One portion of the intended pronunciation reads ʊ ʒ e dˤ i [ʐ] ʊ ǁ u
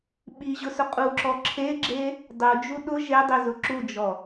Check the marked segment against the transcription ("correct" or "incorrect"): incorrect